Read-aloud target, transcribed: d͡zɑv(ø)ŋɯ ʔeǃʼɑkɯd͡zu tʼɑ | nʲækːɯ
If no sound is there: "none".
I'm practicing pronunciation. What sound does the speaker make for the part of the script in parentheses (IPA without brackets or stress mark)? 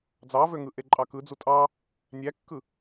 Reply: ø